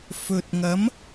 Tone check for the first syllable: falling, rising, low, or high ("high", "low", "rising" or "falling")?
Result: low